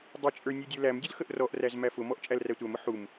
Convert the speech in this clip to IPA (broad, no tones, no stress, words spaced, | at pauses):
dˤət͡ʃʼə˞ nʲudʲə˞læmdʲʊl xəʔrɔʔræz mæfʊmɔʔ t͡ʃʼælrætʷæmʊ ħum